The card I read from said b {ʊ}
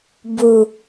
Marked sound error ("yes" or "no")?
yes